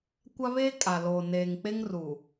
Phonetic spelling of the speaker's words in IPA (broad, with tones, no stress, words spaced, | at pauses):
kʷa˦βeː˦ kʼa˨loː˨ neː˨ŋk͡pe˦ŋruː˨